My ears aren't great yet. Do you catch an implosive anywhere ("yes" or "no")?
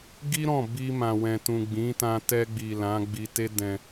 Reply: no